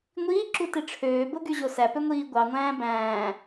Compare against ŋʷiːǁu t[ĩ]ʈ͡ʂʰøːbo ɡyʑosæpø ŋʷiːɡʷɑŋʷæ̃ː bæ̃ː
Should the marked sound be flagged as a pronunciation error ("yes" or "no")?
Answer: yes